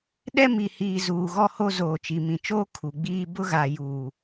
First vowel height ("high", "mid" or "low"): mid